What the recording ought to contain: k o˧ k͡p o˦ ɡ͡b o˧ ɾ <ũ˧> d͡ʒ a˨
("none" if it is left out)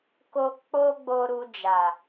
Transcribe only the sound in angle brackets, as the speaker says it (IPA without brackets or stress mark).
u˧